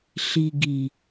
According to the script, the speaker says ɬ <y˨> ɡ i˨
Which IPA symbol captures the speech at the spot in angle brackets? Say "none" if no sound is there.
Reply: i˨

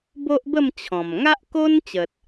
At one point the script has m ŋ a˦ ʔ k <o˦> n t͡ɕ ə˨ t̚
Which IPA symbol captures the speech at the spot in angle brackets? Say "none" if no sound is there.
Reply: o˦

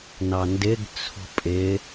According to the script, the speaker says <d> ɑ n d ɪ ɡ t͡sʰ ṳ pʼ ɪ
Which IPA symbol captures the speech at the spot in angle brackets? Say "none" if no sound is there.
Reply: n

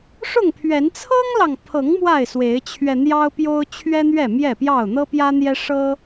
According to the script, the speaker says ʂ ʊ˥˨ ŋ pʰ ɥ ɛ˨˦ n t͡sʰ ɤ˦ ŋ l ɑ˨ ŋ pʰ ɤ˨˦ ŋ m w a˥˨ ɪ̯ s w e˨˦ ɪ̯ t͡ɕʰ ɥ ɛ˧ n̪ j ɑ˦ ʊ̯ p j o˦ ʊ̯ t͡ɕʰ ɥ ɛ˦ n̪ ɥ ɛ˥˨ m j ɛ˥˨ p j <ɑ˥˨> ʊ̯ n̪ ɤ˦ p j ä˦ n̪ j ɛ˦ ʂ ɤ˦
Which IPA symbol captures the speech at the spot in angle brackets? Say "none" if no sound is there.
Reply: ɑ˥˨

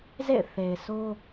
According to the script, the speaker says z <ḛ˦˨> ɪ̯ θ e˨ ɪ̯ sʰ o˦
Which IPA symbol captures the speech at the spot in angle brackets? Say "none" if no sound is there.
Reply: ḛ˦˨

